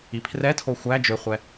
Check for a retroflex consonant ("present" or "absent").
absent